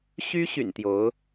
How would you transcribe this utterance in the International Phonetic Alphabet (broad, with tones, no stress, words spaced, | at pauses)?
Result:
ɕy˥ɕy̰˨˩n t̪jo˧˥ʊ̯